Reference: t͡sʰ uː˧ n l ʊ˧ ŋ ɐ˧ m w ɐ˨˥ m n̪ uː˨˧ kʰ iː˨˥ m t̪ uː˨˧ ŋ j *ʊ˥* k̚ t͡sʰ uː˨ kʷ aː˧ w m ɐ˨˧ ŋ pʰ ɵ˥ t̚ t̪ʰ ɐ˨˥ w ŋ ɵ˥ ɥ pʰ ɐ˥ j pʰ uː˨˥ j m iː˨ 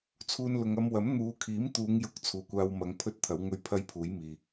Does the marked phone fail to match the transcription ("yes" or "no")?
yes